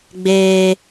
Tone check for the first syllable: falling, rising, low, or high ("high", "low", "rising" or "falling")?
high